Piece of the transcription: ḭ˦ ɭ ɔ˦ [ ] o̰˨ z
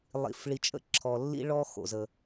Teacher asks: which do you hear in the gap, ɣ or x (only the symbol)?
x